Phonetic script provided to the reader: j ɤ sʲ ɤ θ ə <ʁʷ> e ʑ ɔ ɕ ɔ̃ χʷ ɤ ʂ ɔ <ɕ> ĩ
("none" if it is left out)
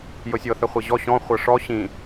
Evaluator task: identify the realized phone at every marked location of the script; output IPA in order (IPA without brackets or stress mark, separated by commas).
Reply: χʷ, ɕ